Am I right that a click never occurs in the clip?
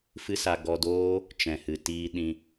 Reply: yes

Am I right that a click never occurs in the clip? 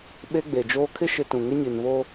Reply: yes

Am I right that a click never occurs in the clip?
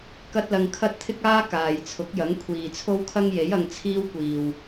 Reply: yes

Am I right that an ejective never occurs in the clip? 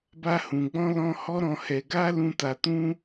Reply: yes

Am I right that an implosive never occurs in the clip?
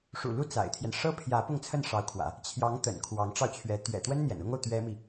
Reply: yes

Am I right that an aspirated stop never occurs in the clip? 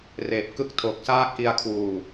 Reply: no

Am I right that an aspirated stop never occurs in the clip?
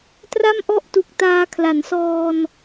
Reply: no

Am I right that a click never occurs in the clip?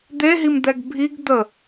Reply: yes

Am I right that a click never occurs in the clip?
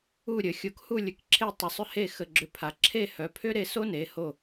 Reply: no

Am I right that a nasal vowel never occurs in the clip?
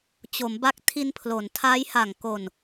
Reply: yes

